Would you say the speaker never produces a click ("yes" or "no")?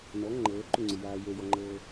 no